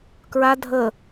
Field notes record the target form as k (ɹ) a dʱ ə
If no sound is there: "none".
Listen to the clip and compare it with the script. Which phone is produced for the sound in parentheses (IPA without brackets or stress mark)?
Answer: ɹ